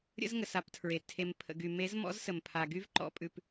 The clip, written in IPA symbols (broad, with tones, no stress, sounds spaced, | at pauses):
ɾʲ ə̰˦ z ŋ ə˨ s a˧ p tʰ ɹ e˨ tʰ e˨ m pʰ ə̰˨ ɡ y˨ m e˨˦ z m ɔ̰˨˦ z s ə˨ m pʰ a˨ ɡ y˦ v ǃ ɔ̰˧ pʼ ʉ˨ p